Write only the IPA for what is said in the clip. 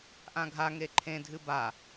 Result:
ʔãɡʱa ŋeǃʰẽ dʱɨba

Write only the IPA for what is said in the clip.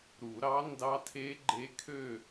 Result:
ɾu˨˩˦ɾɑ˧˥ ndɑ˧˥tʰe˧˥ɡ͡ǃe˧˥kʰø˥˨

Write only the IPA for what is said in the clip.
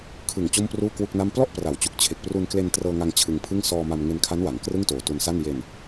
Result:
kʰɯ˨˩ŋ t͡ɕo˥˩mpruː˥˩kwu˥˩k̚na˥˩m plɔ˥˩ʔpra˩˦wt͡ɕu˨˩k̚ t͡ɕʰe˨˩k̚pru˧nkle˧n trɤː˧ŋa˧ŋ t͡ɕʰɯ˧ŋpʰɯ˥˩ŋ sɔː˧ma˧m ŋe˧nkʰa˦˥nwa˩˦ŋ krɯ˥˩ŋtoː˨˩ tu˧nsa˥˩n je˧n

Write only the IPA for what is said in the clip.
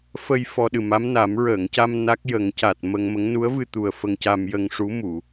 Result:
fə˧j fɔ˧ɗɨ˨˩ma˧˥mna˨˩˦m ɹəː˨˩˨ŋca˧m na˦˥k̚jə˨˩˦ŋ ca˨˩t̚mə˧ŋmə˧˥ŋ nu˧˥ə̯vɨ˧t̪u˨˩ə̯ fə˧ŋca˧m jə˧ŋʂu˧˥mu˨˩˨

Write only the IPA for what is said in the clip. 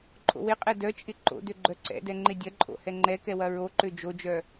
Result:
ǃʼo̰wɪqʼɛ dœt͡ʃʼɪ ǃo̰dø ɡ͡ǃœǀɛ̰dɛ ŋ͡ǃɪdʲɐǃʼo̰ hɛŋ͡ǃɛkɛ wɐɹoǃø d͡ʒod͡ʒœ

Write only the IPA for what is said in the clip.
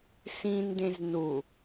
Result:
sĩndẽz nu

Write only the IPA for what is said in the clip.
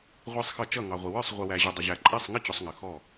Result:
ʁʷi˨sˤxʌ˨ t͡ʃʌ˥˩ŋɑ˨ʁʷɪ˨ wə˞˥˩sˤ ʁʷɪ˨wæ˨ʑʊ˨ dˤʊ˨ʑæ˨ ǃʼæ˥˩sˤŋɪ˥˩t͡ɕʊ˨sˤ ŋə˨ xɔ˥˩

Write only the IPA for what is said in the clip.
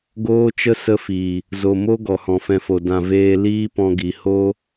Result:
ɡoː˦t͡ʃə˦ sə˦fiː˨ | zo˨mo˦ ɡɔ˨hɔ̃˨fɛ̃˧fo˨ dã˨veː˧ liː˦pɔ̃˧ɡi˨ ho˦

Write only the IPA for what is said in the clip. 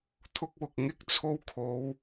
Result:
t̪ʰʊ˧k̚wʊ˨k̚ ŋɪ˥k̚t͡sʰo˧wkʰo˨˧w

